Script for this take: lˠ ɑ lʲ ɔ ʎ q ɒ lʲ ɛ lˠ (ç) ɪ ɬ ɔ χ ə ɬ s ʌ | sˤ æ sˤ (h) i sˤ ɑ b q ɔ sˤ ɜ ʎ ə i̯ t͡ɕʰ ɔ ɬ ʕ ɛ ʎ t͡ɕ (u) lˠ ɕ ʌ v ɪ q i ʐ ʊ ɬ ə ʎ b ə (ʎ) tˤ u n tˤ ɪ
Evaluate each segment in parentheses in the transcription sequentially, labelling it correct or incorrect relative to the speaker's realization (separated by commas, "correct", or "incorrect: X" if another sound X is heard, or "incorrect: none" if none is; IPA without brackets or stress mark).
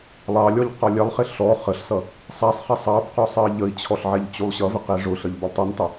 incorrect: χ, incorrect: χ, correct, incorrect: lˠ